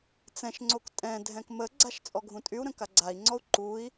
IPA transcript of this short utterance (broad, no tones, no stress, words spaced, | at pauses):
t͡sɛ̃ʃŋ͡ǀok tʼɛ̃dʱɛ̃k məɡ͡ǀaʃ t͡sʼɔɡʱũtʼyu̯ɾə̃ kaɡ͡ǀai̯ŋ͡ǀɔu̯ ǃui̯